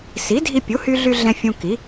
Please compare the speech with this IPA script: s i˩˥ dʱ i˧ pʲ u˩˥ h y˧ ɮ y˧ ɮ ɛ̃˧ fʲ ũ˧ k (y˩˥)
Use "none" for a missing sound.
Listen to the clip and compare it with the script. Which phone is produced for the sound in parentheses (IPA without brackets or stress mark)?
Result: i˩˥